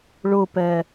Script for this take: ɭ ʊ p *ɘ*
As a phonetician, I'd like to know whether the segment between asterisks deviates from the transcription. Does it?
yes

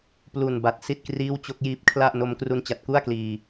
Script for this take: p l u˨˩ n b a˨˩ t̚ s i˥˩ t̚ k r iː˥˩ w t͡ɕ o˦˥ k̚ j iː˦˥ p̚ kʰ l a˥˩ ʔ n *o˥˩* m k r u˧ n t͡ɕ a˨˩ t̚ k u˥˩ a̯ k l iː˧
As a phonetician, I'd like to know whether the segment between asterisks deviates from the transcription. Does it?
yes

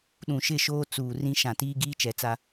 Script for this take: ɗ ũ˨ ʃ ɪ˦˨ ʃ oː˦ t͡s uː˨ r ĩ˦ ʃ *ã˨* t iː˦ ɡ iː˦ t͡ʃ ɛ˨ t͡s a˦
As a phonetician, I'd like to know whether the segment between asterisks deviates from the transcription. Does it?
no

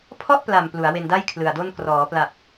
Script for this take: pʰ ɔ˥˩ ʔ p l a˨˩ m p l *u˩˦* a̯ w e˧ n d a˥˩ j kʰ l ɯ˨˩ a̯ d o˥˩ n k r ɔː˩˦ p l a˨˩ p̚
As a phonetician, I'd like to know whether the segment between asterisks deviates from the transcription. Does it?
no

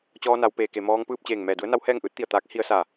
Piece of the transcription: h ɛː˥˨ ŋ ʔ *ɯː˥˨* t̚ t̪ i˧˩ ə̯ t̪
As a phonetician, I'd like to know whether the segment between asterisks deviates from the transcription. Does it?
yes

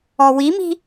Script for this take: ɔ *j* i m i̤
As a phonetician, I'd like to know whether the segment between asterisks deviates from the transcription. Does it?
yes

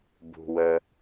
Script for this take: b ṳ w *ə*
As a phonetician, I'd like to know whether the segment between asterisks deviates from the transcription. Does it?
no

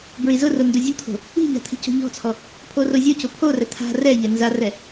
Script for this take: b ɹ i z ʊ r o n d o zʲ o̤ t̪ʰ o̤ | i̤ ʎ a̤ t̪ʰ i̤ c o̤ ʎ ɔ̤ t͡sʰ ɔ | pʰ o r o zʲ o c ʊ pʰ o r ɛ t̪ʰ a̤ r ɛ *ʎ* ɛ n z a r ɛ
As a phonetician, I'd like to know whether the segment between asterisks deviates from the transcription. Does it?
no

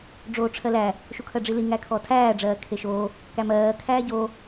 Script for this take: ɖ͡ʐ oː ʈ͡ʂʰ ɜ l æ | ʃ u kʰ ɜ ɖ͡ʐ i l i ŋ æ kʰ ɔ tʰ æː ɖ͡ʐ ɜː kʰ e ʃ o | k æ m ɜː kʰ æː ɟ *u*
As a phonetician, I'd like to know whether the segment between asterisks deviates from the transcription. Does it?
yes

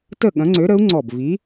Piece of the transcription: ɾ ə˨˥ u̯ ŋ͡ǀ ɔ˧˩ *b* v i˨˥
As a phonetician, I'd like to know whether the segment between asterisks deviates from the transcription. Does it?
no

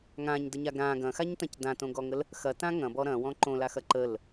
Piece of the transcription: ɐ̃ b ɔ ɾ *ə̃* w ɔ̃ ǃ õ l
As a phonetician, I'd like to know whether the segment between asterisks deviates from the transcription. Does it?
yes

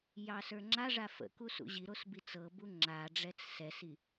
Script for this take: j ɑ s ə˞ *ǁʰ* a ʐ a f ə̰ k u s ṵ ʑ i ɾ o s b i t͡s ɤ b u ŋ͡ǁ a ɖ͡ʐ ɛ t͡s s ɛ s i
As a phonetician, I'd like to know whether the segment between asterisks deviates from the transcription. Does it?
yes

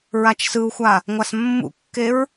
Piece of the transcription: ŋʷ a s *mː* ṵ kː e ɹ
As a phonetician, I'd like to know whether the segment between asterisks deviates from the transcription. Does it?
no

